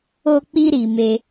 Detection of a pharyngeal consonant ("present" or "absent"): absent